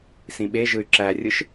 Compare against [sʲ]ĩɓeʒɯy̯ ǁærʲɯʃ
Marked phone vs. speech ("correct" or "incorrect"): incorrect